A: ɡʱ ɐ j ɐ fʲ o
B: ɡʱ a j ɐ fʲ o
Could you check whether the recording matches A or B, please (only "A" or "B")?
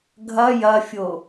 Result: A